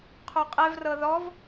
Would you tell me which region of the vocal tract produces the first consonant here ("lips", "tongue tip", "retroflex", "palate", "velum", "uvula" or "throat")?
uvula